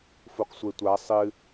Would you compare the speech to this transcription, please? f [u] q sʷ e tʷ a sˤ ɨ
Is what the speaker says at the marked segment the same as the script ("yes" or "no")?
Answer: yes